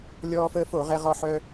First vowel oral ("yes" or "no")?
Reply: yes